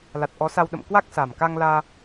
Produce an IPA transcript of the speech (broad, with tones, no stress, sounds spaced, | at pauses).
l a˨˩ t̚ ʔ ɔ˨˦ s a˧ w ɗ ə̰˧˨ m k w a˦˥ k̚ s a˨˩ m k a˧ ŋ l aː˧